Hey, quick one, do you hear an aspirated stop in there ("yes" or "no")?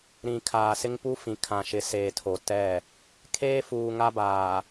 yes